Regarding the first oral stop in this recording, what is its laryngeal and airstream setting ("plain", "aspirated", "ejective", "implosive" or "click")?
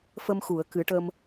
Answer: plain